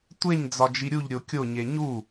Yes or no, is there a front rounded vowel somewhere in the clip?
no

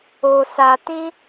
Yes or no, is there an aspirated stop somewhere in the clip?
no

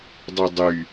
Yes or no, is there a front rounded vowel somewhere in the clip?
yes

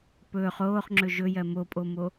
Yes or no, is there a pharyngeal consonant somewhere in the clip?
no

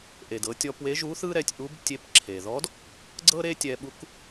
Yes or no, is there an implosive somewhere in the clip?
yes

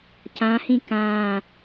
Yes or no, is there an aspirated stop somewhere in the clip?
no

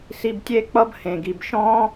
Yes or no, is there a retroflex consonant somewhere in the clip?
no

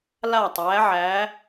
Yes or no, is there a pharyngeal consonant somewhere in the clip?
yes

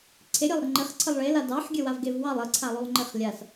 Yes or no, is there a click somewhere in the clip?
yes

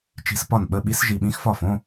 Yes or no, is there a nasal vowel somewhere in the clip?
yes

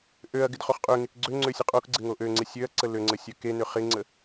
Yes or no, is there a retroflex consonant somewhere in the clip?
no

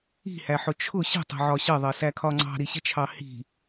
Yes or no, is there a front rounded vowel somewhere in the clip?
no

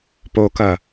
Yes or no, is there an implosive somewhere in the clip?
no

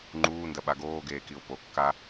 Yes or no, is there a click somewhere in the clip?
yes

